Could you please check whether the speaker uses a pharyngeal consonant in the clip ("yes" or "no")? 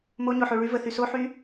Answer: yes